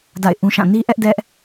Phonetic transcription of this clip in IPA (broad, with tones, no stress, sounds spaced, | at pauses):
d a̰˦˨ ɪ̯ ʔ ũ˦ ʃ ã˦˨ n i˦ ʔ ɛ˦ ʔ d ɛ˦ ʔ